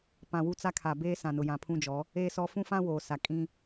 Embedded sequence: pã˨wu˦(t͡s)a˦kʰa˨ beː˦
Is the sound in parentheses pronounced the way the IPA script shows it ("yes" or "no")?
yes